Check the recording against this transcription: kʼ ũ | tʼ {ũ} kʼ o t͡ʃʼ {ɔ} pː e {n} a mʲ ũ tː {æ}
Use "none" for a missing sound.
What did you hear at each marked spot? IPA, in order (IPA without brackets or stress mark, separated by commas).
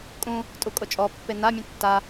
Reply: u, ɔ, n, a